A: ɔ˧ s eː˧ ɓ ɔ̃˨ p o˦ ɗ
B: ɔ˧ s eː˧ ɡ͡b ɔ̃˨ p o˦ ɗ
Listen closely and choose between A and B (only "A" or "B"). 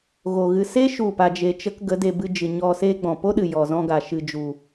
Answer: B